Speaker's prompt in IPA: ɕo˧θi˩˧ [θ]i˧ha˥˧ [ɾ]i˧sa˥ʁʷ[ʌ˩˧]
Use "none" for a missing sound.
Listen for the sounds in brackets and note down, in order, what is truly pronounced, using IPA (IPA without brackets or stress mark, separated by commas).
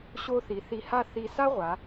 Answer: θ, θ, a˩˧